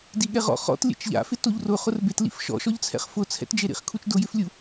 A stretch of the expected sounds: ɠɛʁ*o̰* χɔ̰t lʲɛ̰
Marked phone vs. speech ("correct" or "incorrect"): incorrect